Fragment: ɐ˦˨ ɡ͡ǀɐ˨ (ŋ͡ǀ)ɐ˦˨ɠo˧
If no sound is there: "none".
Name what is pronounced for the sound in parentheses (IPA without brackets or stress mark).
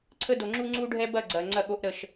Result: ŋ͡ǀ